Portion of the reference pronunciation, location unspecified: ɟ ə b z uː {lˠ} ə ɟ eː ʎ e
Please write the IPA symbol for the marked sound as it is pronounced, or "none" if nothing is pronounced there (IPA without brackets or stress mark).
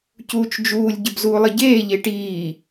lˠ